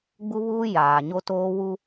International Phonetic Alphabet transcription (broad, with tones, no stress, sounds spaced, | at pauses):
ɡ͡b u˦ β uː˦ j aː˨ ɲ o˦ t oː˦ w u˦